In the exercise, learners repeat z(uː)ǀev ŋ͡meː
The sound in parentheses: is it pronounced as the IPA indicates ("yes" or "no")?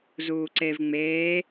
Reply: yes